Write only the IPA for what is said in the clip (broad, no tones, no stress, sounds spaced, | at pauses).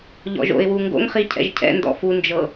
ʎ ɔ̰ ʒ o̰ ɪ̯ w u ŋ ɡ o̰ ŋ χ i cʰ ɛ̰ ʒ cʰ ɛ̰ n d ɔ̰ f u n d͡ʒ ɤ